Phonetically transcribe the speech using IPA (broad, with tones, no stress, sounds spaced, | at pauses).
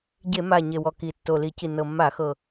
ɟ e˧˩˧ m a˨˩ ɲ e˨˩ w ɔ˨˩ k i˨˩ tː o˨˩ l i˧˩˧ c i˨˩ n ɤ˨˩ mː a˧˩˧ x ɤ˨˩